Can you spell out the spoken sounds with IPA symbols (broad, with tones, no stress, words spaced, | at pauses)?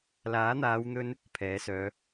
laː˨˥n̪aː˨˧wn̪ɵ˧n | pʰɛː˨˥sœː˨˧